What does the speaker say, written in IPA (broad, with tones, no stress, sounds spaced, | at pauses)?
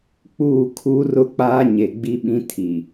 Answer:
k͡p uː˦˨ kʰ u˦ r ʊ˦ k͡p aː˦ ɲ e˨ ɡ͡b i˦ ɓ ĩ˦ tʰ i˨